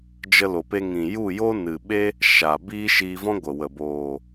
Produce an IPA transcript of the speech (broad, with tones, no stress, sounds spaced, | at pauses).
d͡ʒ ə˧ l o˨ p e˧ ŋ ĩ˨ j u˦˨ j o˦ n ɨ˨ ɓ e˦ | ʃ aː˨ b iː˦ ʃ iː˧ v ɔ̃˦ ɡʷ ə˨ w ə˨ b oː˨